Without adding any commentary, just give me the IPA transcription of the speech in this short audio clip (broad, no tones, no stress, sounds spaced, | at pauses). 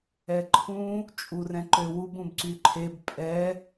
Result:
ɛ ǃʰ ũ | t͡ʃʼ u r ɛ̃ ǃ ø w u b ũ b ǀ y ǃʰ e b pʼ ɛ